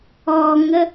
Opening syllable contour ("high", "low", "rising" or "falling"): low